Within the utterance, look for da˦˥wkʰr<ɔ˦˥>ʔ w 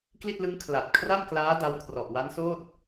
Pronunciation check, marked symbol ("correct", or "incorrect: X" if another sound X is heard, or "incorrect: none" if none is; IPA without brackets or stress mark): incorrect: ɔ˨˩